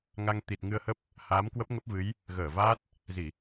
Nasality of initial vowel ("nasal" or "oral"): oral